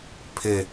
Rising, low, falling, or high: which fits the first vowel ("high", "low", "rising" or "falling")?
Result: falling